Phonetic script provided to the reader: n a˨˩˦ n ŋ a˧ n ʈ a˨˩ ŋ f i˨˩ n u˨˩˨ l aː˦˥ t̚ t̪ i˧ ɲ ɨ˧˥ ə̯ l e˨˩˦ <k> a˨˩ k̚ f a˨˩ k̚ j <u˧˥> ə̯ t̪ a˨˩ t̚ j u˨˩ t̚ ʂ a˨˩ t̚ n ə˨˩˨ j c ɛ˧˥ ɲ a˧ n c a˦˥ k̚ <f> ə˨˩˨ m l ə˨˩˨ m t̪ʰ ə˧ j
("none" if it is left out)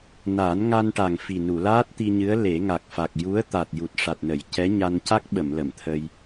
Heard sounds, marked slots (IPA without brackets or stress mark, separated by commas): ŋ, u˧˥, ɓ